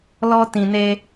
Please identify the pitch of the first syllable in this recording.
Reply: low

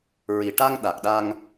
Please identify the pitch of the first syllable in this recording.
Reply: low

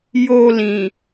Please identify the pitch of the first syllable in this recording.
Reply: low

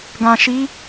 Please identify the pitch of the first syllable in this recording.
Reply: low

